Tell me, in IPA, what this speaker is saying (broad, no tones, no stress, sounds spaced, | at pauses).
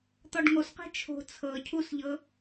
t̪ ɔ ɖ ŋ o s q ɛ̤ t͡ʃʰ o̤ t͡sʰ ɤ cʰ u s ʎ ɤ